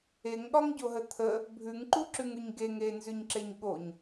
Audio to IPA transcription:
e ŋ ɠ ɒ ŋ ɟ o ɦ ə t̪ʰ ə | bʱ ʉ ŋ ǃ u ǁ ʉ ŋ ʉ ɲ ɡ e ŋ e n z ʉ ɲ ǁ e ɲ ɠ o ɲ

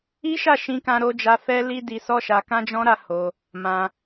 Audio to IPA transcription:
i˦ ʃ a˦˨ ʃ ĩ˧ k ã˧ ɾ o˦ d͡ʒ a˦ f ɛ˦ l i˦ d i˧ s ɔ˦ ʃ a˧ k ã˦ d͡ʒ ɔ̃˦ ɾ a˦ h o˧ | m ã˧

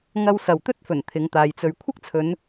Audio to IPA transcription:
ŋ ɐ˧ w s ɐ˨ w t̪ ɵ˥ t̚ f ɵ˨˩ n t̪ʰ ɪ˨˧ ŋ t̪ aː˨˧ j t͡s ɵ˧ ɥ kʷʰ ɐ˥ k̚ t͡sʰ ɵ˨˧ n

